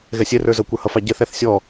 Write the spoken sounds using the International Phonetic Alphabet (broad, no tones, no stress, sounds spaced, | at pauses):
ɣ ɛ sʲ ɛ r ə˞ z ʌ kʷ ə˞ h ʌ f ɑ ɟ ɛ θ æ θ sʲ ɔ